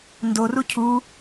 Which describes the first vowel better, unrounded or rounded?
rounded